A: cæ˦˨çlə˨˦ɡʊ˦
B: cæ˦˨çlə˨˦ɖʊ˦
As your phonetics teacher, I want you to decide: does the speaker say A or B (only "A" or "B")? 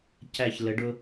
B